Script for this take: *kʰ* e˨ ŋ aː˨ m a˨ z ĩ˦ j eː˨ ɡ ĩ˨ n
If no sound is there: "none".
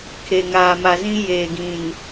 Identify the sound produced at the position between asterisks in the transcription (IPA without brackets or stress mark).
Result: kʰ